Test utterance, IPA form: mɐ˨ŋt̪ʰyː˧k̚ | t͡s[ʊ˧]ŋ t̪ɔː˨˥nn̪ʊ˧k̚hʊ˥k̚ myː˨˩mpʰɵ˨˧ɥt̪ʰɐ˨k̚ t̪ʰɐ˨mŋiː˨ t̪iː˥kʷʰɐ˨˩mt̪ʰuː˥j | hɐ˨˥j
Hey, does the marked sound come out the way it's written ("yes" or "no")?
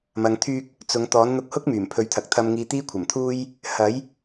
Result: no